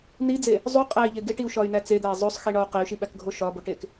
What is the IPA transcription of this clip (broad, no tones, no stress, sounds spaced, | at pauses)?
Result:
n i d͡z e | zˤ u qʼ æ i̯ ʎ e ɡ e ʈ i u̯ ʃ ɒ y̯ n æ t͡s e d̪ æ i̯ zˤ o sˤ x i ɳ ɒ u̯ q e y̯ ʃ i ɓ æ k ɡʱ o ʃ ɒ b o ʈ e k